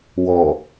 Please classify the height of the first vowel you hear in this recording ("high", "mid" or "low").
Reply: mid